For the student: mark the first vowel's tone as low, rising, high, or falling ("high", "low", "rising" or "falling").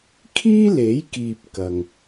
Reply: high